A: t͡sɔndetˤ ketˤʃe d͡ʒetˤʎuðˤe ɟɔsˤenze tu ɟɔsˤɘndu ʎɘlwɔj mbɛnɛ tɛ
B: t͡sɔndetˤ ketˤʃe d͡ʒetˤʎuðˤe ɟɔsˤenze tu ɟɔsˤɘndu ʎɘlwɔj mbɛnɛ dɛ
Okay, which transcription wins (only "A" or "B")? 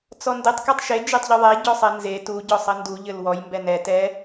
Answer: A